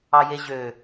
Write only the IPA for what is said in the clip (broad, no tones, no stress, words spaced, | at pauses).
ɑjeʑø